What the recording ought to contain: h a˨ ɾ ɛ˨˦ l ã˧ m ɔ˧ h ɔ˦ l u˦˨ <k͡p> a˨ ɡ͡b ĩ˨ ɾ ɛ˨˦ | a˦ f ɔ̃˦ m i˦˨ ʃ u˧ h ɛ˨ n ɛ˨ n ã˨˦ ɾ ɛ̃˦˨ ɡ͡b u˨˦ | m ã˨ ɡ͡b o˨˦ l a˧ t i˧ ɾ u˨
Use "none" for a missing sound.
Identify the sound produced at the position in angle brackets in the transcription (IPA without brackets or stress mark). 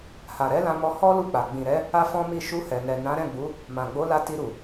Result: k͡p